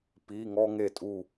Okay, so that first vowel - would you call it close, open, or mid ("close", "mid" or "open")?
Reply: close